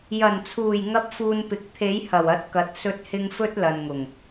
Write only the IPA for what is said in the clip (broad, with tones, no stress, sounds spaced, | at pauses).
j ɐ˨˩ n t͡sʰ uː˨˩ j ŋ ɐ˥ p̚ f uː˧ n p ɪ˨˥ k̚ t̪ʰ e˨˥ j h ɐ˨˩ w ɐ˨˥ t̚ k ɐ˨˥ t̚ s ɵ˥ t̚ h ɪ˥ ŋ f ɵ˥ t̚ l ɐ˨ n ŋ ʊ˨˩ ŋ